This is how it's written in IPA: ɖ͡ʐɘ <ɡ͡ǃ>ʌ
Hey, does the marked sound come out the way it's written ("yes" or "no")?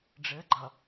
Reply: yes